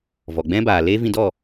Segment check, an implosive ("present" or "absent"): absent